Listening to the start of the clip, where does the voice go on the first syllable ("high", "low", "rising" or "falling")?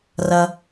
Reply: low